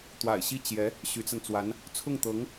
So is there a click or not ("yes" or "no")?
no